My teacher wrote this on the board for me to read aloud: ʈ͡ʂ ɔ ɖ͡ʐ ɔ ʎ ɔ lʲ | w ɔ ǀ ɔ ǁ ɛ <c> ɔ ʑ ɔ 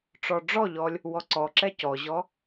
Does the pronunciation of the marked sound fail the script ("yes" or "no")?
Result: no